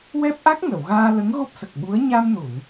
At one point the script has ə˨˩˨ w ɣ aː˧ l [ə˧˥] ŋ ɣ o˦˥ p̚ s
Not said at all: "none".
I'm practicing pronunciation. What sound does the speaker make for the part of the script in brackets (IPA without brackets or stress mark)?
ə˧˥